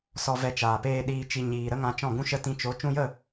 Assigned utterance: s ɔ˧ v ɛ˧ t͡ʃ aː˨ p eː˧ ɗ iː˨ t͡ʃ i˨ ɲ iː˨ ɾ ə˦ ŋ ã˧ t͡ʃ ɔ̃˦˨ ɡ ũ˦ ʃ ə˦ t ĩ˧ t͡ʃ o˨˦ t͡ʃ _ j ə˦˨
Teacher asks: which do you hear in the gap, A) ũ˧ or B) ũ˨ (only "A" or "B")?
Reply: A